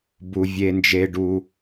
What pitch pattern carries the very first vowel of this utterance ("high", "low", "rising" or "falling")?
low